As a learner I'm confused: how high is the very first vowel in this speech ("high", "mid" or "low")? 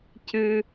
high